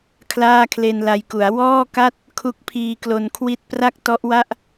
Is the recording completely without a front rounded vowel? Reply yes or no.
yes